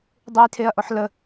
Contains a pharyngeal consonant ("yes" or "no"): yes